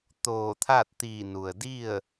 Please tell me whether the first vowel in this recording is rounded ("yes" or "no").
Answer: yes